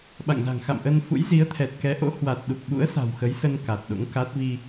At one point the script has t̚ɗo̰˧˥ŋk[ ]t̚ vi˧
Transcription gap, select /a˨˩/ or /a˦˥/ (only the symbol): a˦˥